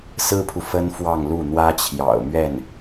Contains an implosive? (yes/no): no